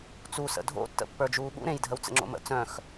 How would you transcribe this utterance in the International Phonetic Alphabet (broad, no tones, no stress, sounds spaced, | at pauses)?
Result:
t͡s u s ə̰ dʱ o̰ tː ə̰ pː ə˞ d͡ʒ uː ɓ ṵ ɾ ẽ j dʱ ə w t͡s ə̰ ŋ͡ǁ o̰ m ə̰ t͡s œ̃ x